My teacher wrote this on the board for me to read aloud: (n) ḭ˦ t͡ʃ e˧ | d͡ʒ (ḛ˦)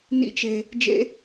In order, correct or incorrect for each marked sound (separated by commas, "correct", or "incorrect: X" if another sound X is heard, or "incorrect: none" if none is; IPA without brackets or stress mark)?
correct, correct